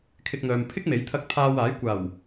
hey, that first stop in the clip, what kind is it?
aspirated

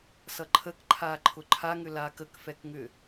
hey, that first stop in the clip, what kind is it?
click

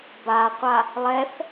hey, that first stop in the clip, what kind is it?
plain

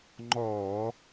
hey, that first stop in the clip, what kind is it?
click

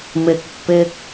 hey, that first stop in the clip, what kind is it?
plain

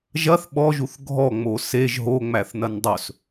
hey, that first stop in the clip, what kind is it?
implosive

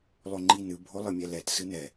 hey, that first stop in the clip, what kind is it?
click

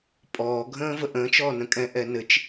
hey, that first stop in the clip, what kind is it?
ejective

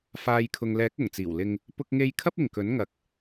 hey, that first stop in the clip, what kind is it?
aspirated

